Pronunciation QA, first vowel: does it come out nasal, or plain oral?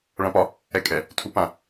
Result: nasal